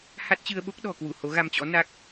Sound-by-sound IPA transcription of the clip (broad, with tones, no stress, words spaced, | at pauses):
ha˦˥t̚t͡ɕɨ˧ə̯ɓo˦˥k̚ ɗɔ̤˨˩kwu˧˩ ho˨˦ɣa˧mt͡ɕɔ̰˧˥ na˦˥k̚